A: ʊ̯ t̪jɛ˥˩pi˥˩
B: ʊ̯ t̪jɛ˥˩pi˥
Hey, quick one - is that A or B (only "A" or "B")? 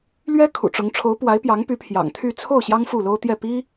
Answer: B